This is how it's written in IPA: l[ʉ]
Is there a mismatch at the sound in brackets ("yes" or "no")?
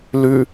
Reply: no